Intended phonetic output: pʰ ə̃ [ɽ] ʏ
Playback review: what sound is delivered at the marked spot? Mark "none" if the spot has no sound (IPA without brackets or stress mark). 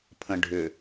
ɖʱ